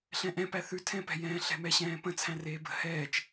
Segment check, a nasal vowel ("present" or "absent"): present